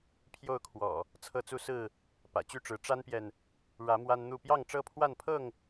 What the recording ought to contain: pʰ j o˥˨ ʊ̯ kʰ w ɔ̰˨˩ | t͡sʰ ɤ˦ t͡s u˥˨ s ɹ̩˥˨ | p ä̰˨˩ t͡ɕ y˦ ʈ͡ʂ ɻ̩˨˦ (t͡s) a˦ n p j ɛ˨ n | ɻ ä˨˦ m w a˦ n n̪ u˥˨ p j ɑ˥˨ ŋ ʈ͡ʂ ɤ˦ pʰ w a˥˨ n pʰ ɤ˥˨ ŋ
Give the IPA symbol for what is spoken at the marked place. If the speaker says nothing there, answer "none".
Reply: ʈ͡ʂ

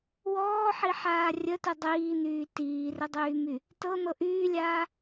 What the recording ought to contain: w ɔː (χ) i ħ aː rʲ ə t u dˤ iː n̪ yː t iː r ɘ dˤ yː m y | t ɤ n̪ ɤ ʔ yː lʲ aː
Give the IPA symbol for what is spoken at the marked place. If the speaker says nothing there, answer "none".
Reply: ħ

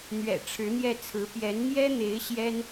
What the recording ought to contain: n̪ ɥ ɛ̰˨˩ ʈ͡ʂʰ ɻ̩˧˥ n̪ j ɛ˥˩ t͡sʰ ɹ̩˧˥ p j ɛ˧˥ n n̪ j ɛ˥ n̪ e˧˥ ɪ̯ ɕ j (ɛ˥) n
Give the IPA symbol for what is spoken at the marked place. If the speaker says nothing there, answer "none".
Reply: ɛ˥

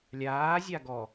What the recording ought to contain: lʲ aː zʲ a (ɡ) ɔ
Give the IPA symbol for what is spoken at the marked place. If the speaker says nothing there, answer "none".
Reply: ɡ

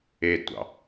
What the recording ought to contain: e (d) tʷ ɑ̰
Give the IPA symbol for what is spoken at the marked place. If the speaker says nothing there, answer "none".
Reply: d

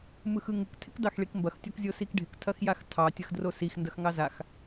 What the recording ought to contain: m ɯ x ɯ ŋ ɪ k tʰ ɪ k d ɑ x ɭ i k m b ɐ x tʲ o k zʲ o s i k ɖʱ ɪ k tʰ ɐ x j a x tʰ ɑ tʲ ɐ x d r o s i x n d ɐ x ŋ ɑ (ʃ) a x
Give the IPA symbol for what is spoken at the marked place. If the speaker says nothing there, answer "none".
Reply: z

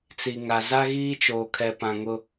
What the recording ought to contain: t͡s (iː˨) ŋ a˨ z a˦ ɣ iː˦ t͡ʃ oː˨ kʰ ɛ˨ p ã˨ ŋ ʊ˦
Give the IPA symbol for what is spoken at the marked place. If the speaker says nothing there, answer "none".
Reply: i˨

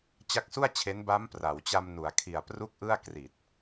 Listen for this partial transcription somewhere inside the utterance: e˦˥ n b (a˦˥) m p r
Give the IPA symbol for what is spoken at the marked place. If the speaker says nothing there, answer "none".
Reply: a˦˥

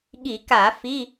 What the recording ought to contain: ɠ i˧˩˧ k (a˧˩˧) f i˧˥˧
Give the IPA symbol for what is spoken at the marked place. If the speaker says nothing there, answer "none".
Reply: a˧˩˧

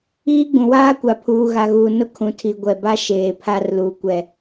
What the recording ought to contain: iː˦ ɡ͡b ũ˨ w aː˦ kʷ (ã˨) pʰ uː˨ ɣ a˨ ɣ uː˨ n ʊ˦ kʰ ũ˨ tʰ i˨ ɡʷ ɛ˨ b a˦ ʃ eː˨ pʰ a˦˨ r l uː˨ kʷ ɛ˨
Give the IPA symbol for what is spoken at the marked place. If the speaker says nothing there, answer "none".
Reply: a˨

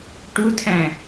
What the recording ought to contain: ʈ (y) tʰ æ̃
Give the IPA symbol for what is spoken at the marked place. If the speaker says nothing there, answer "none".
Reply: u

